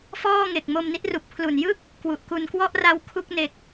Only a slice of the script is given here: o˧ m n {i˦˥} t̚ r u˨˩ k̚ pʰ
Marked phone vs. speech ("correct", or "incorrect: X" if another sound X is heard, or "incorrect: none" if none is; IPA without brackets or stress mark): correct